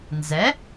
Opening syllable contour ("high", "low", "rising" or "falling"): rising